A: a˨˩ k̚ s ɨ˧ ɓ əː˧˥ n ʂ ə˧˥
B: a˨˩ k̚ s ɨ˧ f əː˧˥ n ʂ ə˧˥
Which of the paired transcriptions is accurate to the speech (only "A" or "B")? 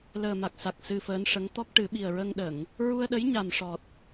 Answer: B